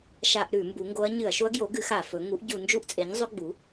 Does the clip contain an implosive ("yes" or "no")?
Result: no